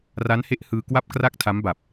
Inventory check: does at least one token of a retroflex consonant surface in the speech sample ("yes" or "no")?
no